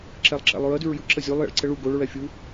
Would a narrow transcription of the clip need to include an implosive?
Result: no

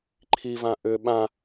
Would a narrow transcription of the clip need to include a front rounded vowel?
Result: yes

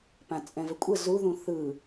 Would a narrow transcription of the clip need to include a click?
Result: no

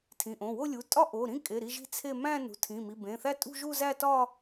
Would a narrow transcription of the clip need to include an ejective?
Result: yes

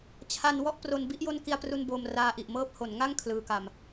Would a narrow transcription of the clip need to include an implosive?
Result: no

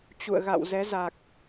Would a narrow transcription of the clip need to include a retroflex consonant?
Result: no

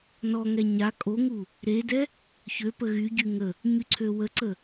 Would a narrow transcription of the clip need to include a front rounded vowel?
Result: yes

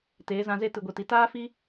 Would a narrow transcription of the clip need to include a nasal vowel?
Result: yes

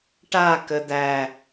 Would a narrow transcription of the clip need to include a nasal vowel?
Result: no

